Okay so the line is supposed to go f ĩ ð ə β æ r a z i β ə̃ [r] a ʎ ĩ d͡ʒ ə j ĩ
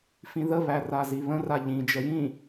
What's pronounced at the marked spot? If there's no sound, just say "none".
r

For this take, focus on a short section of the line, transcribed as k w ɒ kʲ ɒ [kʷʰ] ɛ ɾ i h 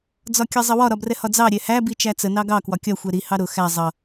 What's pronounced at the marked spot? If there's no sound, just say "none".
xʷ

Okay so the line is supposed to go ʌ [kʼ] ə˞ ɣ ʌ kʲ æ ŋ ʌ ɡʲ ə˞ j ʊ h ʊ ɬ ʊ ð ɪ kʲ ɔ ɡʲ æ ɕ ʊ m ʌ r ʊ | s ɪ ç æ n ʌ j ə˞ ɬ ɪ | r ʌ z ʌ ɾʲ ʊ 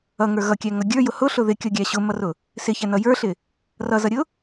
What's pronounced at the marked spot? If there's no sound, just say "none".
ŋ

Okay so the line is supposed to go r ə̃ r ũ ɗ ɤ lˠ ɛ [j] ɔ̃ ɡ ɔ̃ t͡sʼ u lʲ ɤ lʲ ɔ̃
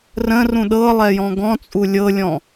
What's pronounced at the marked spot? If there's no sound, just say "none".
j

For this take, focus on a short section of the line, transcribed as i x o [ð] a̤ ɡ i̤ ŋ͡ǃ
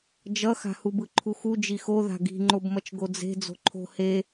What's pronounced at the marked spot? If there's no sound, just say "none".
ð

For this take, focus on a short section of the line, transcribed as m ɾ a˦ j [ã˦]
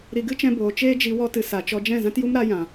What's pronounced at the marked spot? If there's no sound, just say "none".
ã˨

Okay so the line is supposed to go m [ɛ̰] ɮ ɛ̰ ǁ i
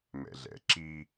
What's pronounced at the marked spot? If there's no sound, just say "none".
ɛ̰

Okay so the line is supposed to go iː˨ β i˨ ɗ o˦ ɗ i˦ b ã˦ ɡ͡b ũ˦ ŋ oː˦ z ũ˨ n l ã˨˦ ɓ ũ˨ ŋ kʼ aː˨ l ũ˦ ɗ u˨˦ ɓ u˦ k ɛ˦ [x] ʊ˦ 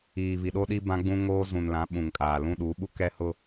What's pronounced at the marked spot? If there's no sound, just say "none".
h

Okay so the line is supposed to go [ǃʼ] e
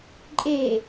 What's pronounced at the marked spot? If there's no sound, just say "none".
ǃʼ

